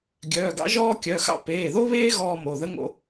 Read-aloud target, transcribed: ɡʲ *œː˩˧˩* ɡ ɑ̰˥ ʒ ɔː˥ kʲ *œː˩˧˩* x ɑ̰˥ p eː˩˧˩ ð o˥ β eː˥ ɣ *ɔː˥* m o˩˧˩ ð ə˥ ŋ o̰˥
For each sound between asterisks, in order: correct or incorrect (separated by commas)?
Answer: correct, incorrect, correct